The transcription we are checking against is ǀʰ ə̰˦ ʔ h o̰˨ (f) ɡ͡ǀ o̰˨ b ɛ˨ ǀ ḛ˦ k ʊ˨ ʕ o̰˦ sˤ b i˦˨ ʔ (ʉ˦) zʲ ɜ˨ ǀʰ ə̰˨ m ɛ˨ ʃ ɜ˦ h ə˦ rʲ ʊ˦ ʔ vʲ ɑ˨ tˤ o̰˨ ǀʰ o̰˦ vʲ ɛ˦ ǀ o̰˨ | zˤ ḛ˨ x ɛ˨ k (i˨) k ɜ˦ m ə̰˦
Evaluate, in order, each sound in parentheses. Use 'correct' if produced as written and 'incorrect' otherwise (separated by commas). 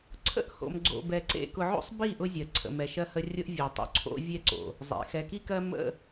incorrect, incorrect, incorrect